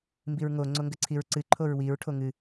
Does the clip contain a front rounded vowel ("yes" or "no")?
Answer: no